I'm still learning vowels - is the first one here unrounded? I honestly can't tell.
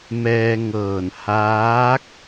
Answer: yes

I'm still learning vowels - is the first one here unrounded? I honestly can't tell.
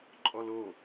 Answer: no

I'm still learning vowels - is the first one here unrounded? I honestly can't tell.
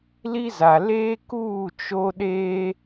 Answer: yes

